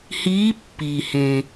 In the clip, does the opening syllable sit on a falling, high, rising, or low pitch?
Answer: rising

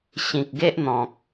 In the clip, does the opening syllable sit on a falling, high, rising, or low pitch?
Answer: low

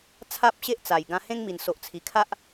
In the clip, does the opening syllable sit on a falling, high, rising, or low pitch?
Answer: high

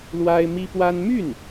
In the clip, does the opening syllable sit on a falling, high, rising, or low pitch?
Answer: high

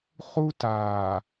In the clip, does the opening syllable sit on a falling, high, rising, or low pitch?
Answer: high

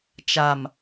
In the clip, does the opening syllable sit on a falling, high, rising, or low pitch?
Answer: low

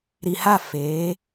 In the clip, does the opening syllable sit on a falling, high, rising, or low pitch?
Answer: low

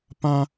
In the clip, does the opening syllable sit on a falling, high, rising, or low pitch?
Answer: high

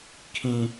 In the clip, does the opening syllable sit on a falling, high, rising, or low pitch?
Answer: high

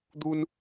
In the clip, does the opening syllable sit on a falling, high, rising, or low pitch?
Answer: high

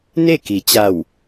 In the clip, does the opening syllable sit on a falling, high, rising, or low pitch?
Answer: falling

